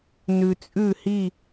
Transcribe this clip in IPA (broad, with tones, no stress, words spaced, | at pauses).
nʉ˧t͡sʼʉ˥˧hi˥˧